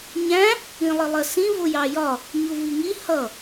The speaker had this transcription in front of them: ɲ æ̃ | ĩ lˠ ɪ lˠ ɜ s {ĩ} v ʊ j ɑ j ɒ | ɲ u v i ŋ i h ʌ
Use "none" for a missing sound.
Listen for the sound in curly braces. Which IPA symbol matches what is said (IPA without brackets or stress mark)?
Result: ĩ